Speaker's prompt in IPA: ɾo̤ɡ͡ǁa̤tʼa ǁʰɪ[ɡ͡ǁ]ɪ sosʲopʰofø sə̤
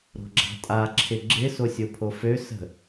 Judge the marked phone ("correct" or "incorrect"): correct